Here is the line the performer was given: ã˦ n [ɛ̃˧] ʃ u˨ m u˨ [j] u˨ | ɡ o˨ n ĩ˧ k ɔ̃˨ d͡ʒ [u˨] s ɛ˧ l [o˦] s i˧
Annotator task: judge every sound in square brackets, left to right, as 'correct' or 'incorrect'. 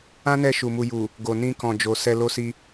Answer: incorrect: ɛ˧, correct, incorrect: o˨, correct

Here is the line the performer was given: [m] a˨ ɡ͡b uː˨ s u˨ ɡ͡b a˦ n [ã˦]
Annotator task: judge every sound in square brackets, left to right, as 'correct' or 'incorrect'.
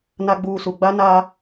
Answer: incorrect: n, incorrect: a˦

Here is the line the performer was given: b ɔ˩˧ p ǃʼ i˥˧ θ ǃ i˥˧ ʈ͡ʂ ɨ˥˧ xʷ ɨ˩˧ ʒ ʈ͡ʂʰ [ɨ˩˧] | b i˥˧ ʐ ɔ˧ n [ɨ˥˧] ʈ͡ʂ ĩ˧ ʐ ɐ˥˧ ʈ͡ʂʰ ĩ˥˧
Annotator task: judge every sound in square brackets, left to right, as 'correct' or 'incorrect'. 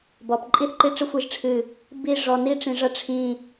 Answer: incorrect: ɨ˧˩, incorrect: i˥˧

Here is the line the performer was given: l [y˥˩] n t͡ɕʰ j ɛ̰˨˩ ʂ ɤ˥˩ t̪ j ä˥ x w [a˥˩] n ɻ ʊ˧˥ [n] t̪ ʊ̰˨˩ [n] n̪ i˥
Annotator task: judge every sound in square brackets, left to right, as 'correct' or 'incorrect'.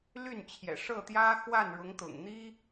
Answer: correct, correct, incorrect: ŋ, incorrect: ŋ

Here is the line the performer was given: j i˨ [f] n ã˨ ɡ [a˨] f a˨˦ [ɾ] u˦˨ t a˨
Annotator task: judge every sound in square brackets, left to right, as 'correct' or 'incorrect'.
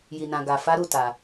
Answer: incorrect: none, correct, correct

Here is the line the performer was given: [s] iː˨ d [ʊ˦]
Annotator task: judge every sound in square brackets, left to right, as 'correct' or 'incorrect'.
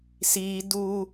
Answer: correct, incorrect: u˦

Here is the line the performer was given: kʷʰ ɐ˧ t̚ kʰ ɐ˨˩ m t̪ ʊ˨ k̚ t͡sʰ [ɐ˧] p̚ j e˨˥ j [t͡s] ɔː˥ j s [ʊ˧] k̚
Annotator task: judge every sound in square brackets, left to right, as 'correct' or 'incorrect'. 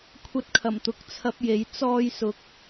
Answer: correct, correct, correct

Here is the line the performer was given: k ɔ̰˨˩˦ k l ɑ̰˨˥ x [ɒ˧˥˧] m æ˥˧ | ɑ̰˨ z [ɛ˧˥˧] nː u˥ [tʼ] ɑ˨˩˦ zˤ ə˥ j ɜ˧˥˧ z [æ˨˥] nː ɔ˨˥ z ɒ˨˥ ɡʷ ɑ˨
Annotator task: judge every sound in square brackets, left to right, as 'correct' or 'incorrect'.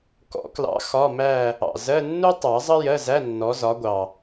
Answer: correct, incorrect: ɜ˧˥˧, incorrect: tˤ, incorrect: æ˧˥˧

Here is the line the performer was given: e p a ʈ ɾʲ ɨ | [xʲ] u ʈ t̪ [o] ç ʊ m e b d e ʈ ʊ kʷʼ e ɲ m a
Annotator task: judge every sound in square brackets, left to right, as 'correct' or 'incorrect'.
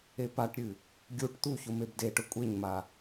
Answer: incorrect: ɡʲ, incorrect: u

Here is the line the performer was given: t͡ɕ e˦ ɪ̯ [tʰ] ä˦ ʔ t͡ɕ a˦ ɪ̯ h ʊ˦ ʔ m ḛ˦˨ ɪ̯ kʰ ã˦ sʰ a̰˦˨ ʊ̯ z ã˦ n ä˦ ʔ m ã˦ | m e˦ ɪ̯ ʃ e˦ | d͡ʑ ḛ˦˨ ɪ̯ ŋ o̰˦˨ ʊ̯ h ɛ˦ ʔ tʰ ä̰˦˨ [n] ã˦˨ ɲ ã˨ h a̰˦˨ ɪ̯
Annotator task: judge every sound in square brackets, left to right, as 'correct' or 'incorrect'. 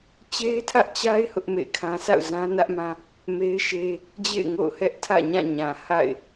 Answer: correct, incorrect: ɲ

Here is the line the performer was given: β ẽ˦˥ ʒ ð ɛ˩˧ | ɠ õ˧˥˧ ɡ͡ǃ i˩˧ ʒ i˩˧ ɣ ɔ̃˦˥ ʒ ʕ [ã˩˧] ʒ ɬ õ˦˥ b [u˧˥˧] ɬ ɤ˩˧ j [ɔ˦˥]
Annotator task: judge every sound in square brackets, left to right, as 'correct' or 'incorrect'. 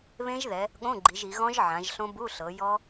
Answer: correct, correct, correct

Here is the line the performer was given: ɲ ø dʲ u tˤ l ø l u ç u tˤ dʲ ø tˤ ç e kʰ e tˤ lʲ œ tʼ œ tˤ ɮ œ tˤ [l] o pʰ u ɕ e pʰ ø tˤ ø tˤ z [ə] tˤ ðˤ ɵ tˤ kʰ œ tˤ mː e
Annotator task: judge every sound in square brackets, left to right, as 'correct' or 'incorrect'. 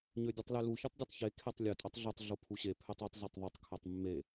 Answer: incorrect: ɮ, incorrect: ø

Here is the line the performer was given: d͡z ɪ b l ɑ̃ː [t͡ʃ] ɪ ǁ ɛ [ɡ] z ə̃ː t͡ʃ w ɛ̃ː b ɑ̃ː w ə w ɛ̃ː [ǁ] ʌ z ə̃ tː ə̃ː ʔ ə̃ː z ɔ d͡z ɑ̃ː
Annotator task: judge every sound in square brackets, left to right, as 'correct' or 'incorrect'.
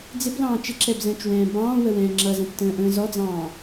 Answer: correct, incorrect: b, incorrect: ŋ͡ǁ

